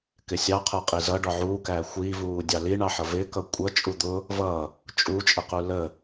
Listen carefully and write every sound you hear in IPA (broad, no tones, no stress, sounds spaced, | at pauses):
k ɪ sʲ ɑ qʰ ə˞ qʼ i z ʌ ɖ ɔ ʕ uː k æ xʷ iː v uː dʲ ɑ l i ɳ ɑ ħ ʌ v ɪ k ʌ kʷʼ ʌ t͡ʃʼ u d̪ ʊ | v ʌ | t͡ʃʼ u t͡ʃʼ ə q u l ə